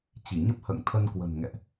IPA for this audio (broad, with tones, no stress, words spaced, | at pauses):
t͡ɕi˧˩ɲə˦˥p̚ hə̰ː˧˨ŋt̪ʰə˧nkwə̤˨˩n ŋɛ̰˧˨ʔ